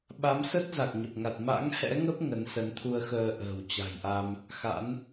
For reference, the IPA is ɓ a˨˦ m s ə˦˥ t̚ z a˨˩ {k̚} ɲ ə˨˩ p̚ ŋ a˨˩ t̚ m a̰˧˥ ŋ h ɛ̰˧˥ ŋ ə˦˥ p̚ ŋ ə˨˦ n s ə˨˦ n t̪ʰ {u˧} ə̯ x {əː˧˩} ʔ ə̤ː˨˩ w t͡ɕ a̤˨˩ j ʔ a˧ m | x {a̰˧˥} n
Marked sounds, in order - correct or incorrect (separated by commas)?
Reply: correct, correct, incorrect, correct